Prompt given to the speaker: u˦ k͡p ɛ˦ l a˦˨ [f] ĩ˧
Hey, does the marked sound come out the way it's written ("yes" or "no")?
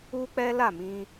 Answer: no